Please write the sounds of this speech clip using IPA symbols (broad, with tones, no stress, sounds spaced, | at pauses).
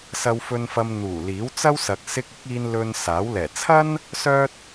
s ɐ˨ w f ɵ˨ n f ɐ˨ m n̪ uː˨˩ l iː˨˥ w t͡s ɐ˥ w s ɐ˨ k̚ s ɪ˧ k̚ ɪ˨˥ k̚ iː˧ n l ɵ˧ n s aː˨˥ w l ɛː˨˩ t͡sʰ ɐ˥ n | s œː˥ t̚